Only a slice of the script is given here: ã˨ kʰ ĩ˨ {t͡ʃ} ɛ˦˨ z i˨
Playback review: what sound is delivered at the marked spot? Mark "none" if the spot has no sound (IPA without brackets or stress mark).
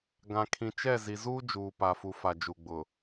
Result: t͡ʃ